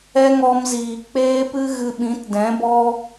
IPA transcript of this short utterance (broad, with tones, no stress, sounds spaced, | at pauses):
ɛ˦ ŋ ɔ˧ m z iː˨ k͡p eː˦ p ɨ˦ ɣ ɨ˧ ɓ ĩ˨˦ t d ɛ̃˨˦ b ɔ˦